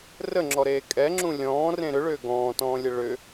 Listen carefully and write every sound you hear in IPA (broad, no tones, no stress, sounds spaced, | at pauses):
r ə ŋ͡ǁ ɔ ɾ eː kʼ ɛ ŋ͡ǁ ũ lʲ ɔ̃ː r ẽ ɾ ʏ ɭ ʏː ɡ ɔ̃ː t ɔ̃ː lʲ ə ɭ ʏ